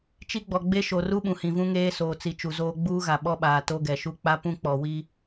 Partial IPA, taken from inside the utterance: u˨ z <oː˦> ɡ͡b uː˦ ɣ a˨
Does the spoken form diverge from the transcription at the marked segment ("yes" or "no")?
no